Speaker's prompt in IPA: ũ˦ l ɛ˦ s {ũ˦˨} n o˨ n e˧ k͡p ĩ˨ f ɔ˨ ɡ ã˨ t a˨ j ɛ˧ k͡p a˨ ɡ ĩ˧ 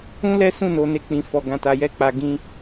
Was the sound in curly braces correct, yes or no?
yes